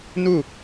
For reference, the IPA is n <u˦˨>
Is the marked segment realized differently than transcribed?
no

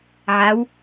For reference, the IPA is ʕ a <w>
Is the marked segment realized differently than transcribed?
no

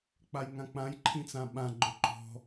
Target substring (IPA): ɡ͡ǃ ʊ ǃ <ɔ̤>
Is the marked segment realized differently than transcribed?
no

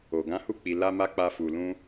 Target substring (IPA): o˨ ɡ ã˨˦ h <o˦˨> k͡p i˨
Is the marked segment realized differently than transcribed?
yes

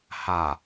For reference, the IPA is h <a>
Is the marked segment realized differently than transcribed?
no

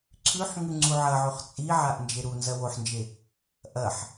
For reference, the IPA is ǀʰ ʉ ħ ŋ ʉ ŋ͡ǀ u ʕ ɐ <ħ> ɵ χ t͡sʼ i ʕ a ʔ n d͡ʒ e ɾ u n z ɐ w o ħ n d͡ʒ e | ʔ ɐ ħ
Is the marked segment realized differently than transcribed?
yes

